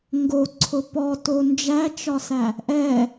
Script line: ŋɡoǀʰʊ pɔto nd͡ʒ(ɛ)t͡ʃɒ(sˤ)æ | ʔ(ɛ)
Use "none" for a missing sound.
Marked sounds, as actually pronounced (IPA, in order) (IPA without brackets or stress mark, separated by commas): æ, s, ɛ